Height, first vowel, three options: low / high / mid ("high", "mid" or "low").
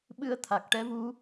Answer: high